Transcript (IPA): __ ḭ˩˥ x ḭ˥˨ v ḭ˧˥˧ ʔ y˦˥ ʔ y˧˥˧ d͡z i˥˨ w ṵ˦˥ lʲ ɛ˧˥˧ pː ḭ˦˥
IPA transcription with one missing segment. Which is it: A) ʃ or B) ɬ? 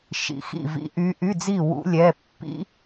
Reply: A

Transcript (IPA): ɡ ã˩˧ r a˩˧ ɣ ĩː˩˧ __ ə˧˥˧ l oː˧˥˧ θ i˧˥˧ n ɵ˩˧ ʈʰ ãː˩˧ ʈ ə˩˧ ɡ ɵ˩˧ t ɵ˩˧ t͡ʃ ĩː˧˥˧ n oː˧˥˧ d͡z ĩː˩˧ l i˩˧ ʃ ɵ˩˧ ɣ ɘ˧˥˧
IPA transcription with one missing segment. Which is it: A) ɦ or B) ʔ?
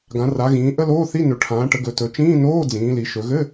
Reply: B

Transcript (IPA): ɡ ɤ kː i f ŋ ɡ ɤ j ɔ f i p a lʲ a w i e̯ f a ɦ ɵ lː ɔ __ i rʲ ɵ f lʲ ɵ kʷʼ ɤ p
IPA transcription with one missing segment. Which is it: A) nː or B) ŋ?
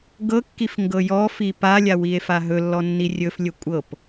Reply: A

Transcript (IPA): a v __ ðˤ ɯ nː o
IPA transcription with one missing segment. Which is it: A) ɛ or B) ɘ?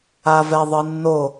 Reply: A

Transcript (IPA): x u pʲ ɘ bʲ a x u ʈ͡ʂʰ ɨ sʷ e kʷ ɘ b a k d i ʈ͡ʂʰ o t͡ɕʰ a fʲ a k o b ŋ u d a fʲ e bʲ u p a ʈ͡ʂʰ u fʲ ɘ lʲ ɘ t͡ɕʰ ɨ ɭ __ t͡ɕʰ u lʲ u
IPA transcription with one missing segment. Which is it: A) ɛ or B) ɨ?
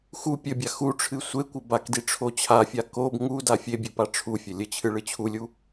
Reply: B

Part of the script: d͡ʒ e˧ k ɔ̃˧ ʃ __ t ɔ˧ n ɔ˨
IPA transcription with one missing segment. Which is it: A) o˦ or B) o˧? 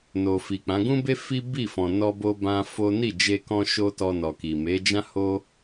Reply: A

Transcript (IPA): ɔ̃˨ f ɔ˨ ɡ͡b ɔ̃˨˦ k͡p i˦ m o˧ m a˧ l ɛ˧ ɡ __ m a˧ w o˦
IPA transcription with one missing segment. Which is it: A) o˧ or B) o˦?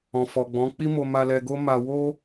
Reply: B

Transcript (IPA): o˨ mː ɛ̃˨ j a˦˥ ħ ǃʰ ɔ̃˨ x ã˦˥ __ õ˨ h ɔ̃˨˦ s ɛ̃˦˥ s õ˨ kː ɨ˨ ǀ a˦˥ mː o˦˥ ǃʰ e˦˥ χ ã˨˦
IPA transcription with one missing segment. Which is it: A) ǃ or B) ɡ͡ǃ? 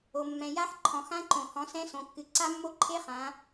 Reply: A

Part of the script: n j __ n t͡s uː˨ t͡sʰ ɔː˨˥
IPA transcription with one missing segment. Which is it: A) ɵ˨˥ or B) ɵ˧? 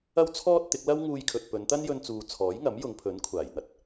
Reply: B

